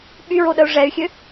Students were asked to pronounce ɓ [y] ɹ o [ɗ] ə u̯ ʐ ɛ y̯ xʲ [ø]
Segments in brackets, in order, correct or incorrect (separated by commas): correct, correct, correct